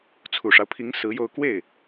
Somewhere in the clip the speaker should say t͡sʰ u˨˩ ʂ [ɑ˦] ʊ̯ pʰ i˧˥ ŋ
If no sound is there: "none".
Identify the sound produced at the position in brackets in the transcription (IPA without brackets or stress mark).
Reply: ɑ˦